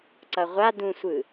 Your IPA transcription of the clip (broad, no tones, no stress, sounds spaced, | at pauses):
ǀ ʌ ʁʷ a d ũ sʷ ɯ